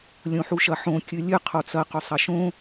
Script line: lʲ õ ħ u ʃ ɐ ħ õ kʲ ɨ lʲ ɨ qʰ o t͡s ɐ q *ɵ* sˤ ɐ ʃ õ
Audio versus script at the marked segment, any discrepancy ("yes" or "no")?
no